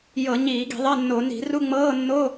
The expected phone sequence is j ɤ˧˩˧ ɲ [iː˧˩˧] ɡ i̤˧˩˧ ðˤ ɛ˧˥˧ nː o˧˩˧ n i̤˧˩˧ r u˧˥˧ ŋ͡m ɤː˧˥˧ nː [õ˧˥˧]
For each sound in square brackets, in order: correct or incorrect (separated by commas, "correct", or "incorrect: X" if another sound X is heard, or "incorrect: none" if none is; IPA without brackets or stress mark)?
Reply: correct, incorrect: o˧˥˧